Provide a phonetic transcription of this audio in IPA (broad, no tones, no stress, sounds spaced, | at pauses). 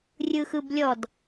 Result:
rʲ ɯ x ɯ b lʲ ɔ d